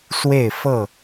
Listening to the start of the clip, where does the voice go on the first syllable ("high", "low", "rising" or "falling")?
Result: falling